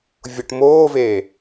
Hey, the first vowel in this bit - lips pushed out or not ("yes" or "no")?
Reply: yes